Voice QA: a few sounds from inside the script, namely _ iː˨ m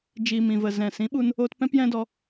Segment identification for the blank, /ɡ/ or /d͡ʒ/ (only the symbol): d͡ʒ